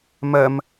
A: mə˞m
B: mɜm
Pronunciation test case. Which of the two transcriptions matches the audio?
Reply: B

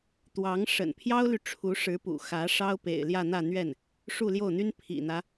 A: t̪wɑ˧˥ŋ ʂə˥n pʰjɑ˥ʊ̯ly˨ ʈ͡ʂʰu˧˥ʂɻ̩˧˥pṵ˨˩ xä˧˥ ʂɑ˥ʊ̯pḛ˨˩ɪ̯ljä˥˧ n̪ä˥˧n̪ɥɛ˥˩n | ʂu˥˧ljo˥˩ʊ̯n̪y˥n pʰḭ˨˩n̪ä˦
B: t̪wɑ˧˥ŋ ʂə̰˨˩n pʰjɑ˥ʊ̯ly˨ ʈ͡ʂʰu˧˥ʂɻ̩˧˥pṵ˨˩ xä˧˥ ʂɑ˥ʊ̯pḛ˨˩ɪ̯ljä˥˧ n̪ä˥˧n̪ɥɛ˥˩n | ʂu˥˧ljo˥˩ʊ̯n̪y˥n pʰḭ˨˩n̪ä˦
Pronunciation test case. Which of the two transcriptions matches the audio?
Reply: B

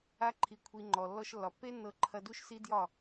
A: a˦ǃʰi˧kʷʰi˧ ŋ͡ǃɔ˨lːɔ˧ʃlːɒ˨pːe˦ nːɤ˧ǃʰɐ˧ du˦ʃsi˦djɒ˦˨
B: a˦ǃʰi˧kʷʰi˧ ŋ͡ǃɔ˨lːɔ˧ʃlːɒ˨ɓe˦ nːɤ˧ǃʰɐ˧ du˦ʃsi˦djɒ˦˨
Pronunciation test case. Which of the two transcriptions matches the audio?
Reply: A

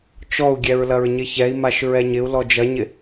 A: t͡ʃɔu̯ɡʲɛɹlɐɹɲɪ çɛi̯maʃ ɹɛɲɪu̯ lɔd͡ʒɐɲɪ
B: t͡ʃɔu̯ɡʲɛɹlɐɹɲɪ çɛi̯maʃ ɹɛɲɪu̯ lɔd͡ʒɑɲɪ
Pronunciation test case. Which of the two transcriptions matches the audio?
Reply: A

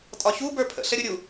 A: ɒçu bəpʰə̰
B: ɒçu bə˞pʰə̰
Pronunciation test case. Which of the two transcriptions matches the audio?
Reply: B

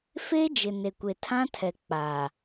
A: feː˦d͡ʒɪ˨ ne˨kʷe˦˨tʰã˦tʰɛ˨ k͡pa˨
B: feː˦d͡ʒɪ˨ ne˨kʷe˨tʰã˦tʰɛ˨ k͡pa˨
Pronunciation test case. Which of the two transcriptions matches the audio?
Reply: B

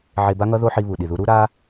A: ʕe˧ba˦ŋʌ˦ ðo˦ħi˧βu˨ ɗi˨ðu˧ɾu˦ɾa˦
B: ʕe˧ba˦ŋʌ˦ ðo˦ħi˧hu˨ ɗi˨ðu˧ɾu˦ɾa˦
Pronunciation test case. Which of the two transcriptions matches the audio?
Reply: A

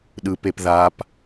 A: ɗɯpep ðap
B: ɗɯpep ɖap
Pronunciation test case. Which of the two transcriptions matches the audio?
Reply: A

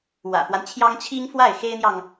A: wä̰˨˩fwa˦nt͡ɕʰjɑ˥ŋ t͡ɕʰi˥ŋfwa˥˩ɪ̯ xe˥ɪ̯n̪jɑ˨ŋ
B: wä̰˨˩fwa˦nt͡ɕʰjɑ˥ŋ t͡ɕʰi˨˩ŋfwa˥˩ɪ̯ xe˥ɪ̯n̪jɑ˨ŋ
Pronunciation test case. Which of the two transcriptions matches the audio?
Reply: A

